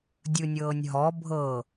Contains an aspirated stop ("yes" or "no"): no